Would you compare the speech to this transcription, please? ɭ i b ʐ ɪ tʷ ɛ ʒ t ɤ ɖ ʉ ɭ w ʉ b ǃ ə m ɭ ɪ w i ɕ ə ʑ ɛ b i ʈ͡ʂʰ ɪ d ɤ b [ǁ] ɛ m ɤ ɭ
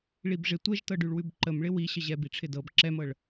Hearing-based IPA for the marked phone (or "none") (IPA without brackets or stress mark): ǁ